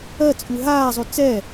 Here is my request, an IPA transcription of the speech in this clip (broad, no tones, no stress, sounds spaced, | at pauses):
ɜ t͡sʼ ʉ ɦ aː zˤ ʉ t͡s ɛ